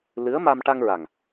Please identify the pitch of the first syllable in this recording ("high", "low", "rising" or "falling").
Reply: rising